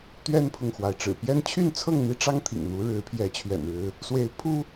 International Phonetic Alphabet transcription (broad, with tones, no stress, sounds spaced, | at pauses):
t̪ ɥ ɛ˦ n pʰ ʊ˨ ŋ x w a˩ ɪ̯ ʈ͡ʂ ɻ̩˨˩ p j ɛ˦ n t͡ɕʰ y˥˨ n t͡sʰ ɤ˥˨ ŋ n̪ i˦ ʈ͡ʂ ɑ˦ ŋ t̪ʰ ḭ˨˩ ŋ n̪ u˨˦ ɻ ɻ̩˨˦ pʰ j ɛ˨˦ t͡ɕʰ ɥ ɛ̰˨˩ n ɻ ɻ̩˨˦ | s w e˨˦ ɪ̯ pʰ u˦